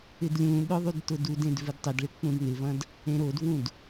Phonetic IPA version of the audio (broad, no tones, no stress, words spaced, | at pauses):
ɪdlʲũɗʊ ðˤydtʊdudẽd vɪdtˤɪdɭɪ k͡pũdnɪvɐ̃d | ẽɾodvũd